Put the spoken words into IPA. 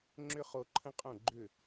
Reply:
ŋ͡ǁ ʏ˦ χ o˦ ǃʰ ə̃˦ qʼ õ˦˨ ɡ͡ǃ ʏ˦˨

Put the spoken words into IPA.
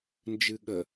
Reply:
n d͡ʒ ɨ ɠ ə

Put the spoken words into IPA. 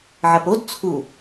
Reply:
ʕ ɐ p o d t͡sʰ u

